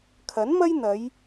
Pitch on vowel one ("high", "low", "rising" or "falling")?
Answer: rising